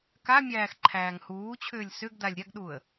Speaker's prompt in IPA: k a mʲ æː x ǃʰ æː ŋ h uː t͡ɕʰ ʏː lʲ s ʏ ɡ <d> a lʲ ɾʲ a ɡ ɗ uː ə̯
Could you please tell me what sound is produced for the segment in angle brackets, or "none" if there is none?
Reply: d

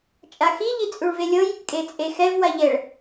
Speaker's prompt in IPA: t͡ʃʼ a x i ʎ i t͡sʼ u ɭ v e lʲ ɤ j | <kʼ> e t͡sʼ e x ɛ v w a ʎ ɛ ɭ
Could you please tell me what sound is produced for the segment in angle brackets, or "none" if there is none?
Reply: kʼ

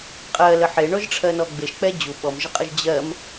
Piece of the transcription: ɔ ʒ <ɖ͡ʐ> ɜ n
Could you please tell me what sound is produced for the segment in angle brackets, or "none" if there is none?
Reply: ʈ͡ʂʰ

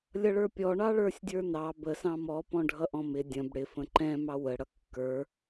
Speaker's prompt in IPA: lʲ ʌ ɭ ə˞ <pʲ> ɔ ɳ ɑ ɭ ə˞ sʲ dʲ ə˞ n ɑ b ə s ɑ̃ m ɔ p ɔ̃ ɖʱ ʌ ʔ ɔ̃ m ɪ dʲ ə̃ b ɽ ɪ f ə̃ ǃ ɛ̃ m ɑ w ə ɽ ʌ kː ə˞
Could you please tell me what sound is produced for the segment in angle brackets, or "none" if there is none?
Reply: pʲ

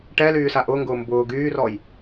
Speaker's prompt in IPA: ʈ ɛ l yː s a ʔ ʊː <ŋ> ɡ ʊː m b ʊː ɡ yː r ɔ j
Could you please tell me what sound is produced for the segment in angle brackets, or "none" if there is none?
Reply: ŋ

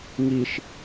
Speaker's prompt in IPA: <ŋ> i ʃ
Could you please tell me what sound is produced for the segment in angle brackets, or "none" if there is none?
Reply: ŋ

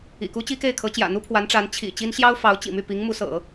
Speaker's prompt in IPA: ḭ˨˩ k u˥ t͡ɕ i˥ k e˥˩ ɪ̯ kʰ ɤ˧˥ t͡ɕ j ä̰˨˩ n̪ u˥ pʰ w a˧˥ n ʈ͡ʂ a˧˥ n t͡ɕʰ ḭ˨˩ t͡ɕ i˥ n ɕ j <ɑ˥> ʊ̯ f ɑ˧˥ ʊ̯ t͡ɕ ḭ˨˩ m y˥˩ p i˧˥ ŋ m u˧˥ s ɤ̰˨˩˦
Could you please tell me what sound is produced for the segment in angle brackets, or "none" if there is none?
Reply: ɑ˥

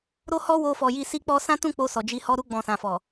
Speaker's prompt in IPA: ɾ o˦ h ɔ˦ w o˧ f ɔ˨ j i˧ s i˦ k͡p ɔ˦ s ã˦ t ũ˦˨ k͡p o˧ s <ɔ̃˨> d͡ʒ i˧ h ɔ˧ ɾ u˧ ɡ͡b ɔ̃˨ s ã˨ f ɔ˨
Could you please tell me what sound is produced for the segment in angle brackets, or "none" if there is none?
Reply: ɔ˨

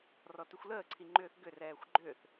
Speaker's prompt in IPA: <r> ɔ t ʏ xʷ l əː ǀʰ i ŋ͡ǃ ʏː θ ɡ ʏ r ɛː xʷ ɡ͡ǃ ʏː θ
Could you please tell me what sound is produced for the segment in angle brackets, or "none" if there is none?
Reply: r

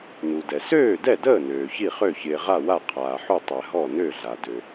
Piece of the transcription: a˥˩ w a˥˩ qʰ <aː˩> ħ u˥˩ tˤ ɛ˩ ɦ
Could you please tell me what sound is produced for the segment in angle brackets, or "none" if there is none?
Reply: aː˩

